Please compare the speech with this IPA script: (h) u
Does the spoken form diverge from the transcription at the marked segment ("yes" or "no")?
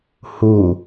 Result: no